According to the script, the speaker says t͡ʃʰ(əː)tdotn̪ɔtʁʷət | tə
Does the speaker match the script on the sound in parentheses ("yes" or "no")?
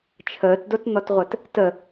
yes